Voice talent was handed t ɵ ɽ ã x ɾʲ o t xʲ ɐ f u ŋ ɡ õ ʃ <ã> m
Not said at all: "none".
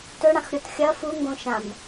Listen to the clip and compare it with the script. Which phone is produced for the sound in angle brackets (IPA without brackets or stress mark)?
ã